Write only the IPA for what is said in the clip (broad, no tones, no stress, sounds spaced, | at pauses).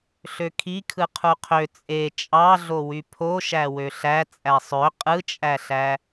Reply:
ɬ ø kʰ i kʰ ɯ qʰ u qʰ ø t͡sʼ e t͡ʃʼ ɑ ɮ o w y pʰ o ʃ æ w ø ɬ æ t͡sʼ æ sˤ ø qʼ ɯ t͡ʃʼ æ ɬ æ